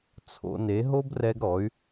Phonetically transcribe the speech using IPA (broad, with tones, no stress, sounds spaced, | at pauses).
t͡sʰ o̰˧ n e˨˦ ɦ o˦ b r ɛ˧ ɡ ɾ ɔ˨˦ y̯